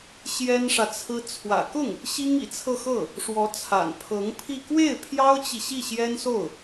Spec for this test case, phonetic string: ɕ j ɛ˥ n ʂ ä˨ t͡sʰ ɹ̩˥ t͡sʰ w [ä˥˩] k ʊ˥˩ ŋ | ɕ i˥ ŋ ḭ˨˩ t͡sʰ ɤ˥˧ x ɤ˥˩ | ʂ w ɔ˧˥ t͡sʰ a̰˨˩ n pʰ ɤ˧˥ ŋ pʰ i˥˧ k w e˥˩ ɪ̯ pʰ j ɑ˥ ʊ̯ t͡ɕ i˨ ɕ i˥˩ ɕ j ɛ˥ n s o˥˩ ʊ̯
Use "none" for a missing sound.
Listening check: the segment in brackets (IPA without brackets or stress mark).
ä̰˨˩